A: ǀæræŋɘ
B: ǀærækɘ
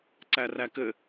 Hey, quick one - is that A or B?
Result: B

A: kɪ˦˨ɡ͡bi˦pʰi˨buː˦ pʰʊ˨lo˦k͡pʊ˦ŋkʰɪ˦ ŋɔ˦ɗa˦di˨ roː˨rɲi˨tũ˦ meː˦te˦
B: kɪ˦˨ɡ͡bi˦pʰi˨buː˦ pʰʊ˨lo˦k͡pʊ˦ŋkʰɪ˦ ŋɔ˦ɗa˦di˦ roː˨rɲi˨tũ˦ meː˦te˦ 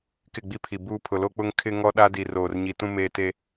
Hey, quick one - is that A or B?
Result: A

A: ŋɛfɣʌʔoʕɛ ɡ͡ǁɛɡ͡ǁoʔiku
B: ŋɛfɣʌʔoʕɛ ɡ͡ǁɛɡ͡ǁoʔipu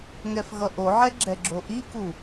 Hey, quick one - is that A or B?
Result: A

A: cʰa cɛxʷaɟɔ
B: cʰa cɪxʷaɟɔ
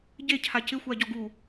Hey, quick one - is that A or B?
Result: B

